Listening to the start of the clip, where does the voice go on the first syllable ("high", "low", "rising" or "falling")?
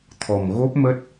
low